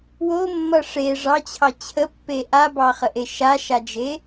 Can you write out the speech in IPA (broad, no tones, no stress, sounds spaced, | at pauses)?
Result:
w o mː ʌ ʂ e ʐ ɑ t͡ɕʰ ɑ t͡ɕʰ ə pː e ʔ a b ɑ χ ə ʔ e ʃ a ʃ a d͡ʒ e